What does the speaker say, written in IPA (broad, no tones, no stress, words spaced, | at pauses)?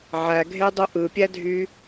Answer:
ʕæɡʱedˤu ʔɯpʲædʱy